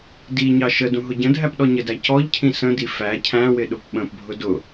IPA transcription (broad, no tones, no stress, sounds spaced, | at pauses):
d i ɲ ɑ ʃ ə d ũ ɦ ʊ ɟ ə̃ dʱ æ p ɗ ɔ ɲ ə d æ c ɔ ʎ cʰ ĩ s ə̃ d i f æ cʰ æ̃ w ɪ ɗ ʊ p ɓ ə̃ p bʱ ʊ d ʊ